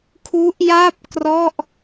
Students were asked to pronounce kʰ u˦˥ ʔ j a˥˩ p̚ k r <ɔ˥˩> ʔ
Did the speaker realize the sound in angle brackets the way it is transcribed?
yes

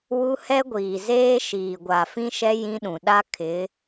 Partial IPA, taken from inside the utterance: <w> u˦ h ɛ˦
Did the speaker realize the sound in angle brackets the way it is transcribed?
yes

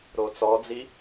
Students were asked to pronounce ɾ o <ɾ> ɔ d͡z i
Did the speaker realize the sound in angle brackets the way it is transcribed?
no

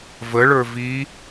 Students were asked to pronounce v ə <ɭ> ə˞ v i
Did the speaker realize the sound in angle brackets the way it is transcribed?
yes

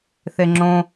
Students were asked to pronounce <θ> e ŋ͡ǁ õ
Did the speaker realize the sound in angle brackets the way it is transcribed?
yes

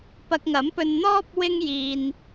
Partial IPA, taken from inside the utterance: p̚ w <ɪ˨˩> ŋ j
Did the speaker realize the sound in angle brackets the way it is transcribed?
no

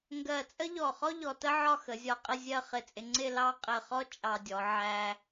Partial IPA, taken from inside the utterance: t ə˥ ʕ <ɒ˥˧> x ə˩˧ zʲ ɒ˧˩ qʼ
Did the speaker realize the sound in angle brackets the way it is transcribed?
yes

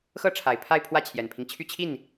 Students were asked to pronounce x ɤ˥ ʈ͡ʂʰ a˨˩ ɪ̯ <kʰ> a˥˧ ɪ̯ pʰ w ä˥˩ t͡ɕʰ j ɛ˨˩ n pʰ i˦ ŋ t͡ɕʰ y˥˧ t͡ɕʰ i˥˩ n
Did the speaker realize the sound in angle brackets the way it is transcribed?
no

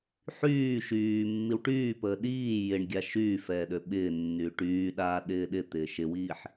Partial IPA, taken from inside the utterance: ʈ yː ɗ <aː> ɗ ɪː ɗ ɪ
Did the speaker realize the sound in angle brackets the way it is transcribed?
yes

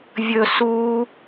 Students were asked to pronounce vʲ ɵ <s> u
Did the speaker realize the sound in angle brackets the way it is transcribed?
yes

